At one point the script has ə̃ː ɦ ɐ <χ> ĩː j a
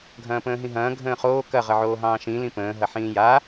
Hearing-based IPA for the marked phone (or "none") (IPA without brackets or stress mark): ħ